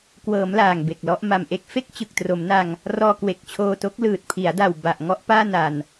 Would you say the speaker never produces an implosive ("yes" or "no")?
yes